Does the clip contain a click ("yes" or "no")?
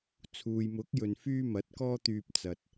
no